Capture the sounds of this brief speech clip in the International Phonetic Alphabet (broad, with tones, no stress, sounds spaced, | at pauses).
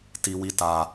t i˦ w i˦ t a˦